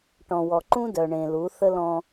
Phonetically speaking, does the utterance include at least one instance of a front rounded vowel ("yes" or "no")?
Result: yes